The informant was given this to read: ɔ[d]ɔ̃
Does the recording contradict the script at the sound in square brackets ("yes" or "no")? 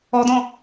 no